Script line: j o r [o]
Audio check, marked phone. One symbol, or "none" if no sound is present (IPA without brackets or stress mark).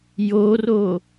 o